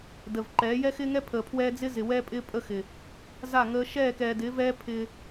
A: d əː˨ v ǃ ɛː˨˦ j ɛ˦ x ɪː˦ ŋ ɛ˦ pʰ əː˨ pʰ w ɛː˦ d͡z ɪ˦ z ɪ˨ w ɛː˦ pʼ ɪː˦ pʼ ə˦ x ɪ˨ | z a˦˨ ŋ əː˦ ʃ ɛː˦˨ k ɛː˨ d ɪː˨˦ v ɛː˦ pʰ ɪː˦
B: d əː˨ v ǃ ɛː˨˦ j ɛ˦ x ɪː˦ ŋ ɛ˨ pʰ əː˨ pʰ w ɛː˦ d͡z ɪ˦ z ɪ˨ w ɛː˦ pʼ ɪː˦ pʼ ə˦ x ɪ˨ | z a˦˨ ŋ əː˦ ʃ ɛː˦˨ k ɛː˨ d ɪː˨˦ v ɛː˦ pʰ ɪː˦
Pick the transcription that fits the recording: A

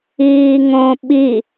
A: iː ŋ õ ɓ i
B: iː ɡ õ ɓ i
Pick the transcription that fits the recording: A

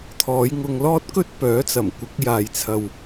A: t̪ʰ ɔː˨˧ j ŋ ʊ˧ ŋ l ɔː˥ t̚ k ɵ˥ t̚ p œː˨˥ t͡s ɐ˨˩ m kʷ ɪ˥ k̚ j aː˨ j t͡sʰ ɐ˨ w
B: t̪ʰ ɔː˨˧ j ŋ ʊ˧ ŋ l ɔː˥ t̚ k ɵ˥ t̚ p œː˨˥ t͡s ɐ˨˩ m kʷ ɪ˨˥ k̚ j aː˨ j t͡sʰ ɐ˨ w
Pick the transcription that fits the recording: B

